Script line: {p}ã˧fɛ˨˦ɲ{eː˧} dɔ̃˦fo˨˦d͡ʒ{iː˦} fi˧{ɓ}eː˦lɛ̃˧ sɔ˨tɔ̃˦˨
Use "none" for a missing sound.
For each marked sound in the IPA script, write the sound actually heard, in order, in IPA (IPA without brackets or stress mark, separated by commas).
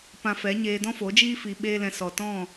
p, eː˧, iː˦, ɓ